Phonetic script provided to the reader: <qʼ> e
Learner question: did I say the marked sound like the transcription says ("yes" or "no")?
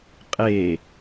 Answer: yes